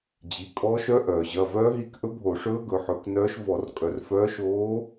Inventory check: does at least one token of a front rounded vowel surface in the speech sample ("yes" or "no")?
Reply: yes